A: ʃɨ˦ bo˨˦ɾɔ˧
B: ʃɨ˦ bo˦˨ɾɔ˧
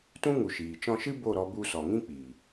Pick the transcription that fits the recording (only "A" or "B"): B